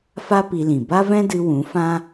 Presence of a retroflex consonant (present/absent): absent